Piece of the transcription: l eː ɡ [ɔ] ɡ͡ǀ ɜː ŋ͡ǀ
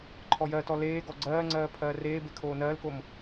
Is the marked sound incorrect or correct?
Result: correct